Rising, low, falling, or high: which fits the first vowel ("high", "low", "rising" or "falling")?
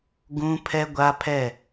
high